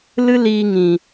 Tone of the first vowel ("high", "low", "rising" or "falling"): high